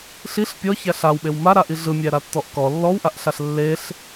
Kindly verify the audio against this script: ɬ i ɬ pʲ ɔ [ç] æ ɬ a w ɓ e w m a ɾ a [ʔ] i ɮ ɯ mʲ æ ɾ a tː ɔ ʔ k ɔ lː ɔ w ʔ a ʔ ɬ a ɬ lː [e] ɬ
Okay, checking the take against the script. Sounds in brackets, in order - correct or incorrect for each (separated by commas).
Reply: correct, correct, correct